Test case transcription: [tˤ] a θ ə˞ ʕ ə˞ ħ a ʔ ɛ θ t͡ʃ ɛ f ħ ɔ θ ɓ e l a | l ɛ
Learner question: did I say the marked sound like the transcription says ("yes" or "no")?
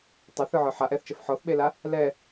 yes